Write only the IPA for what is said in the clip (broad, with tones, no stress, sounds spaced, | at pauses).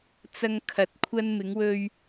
t͡s ɐ˧ ŋ kʰ ɐ˨˥ t̚ kʷʰ ɐ˧ n m ɪ˨˧ ŋ w ɵ˧ ɥ